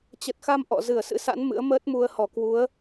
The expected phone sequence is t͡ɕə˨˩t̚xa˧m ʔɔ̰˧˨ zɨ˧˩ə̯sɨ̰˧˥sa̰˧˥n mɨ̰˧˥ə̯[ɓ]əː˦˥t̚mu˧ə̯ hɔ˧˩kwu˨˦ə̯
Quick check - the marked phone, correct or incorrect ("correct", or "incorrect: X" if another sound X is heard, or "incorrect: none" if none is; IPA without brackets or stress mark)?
incorrect: m